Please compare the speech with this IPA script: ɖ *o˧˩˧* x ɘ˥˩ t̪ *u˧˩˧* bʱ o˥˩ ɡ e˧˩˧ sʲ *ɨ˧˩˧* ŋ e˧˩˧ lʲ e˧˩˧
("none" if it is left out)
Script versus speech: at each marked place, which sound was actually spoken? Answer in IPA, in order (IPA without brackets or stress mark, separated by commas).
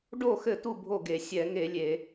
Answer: o˥˩, u˥˩, ɛ˧˩˧